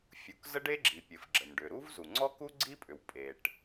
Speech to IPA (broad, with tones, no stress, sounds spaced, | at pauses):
fʲ u˩ k z ə˥ ɖ e˥ ɡ͡ǁ i˩ pʲ ɘ˩ f ɡ͡ǁ ə˩ m ɖ ʏ˩ ɾ u˥ v z u˩ ŋ͡ǀ ɔ˥ k u˥ ɡ͡ǀ i˥ pʼ ʏ˩ w pʼ e˩ ʈ